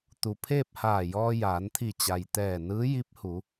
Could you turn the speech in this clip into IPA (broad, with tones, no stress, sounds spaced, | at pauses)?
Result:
t̪ u˩ pʰ eː˥˨ p̚ h aː˧˩ j ɔː˧ j aː˩˧ n t̪ʰ i˧˩ t͡ɕ a˩ j t̪ ɛː˧˩ n ɯː˧˥ j i˧˥ p̚ h u˩˧